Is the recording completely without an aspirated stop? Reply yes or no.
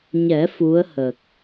yes